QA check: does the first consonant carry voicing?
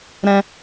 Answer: yes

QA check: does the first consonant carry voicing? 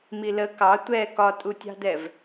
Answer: yes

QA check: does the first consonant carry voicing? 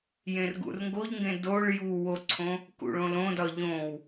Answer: yes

